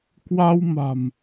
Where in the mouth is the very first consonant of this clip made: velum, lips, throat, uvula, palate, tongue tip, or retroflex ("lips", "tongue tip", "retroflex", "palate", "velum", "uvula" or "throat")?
velum